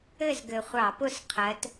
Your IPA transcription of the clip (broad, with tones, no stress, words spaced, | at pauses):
ɘ˥˨zɡɘ˨˩χʷɑ˧˩˧pʊ˥˨s qʰɜ˨˦t